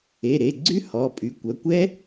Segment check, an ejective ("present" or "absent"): present